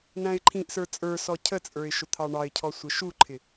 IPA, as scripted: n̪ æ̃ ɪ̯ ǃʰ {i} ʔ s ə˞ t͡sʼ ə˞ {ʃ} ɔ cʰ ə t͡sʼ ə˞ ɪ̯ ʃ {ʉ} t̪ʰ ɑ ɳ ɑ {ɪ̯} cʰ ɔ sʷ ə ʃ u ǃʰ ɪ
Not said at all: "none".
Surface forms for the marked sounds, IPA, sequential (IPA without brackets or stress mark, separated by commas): ĩ, s, ʊ, ɪ̯